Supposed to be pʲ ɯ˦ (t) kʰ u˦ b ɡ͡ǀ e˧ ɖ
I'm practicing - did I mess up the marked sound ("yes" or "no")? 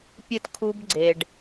no